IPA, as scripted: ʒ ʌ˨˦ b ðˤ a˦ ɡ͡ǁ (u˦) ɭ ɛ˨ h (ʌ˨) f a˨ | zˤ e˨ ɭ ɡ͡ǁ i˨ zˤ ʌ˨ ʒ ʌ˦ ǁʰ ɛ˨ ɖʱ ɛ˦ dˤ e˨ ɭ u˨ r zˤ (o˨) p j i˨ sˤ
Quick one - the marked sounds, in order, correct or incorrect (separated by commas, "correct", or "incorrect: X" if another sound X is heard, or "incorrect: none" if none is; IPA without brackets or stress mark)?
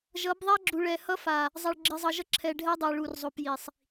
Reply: incorrect: u˨, incorrect: ʌ˦, correct